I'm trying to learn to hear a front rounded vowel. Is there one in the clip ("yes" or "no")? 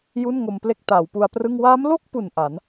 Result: no